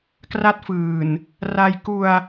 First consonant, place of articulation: velar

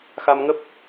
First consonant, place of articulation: velar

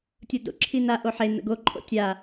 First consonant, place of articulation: alveolar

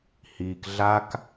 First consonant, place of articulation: glottal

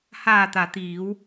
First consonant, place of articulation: glottal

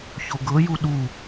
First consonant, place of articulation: palatal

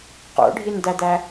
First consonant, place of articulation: uvular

